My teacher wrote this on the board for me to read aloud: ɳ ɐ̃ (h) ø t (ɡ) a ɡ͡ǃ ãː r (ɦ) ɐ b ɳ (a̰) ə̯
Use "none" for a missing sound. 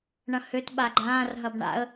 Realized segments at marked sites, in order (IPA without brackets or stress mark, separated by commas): h, ɓ, ɦ, a̰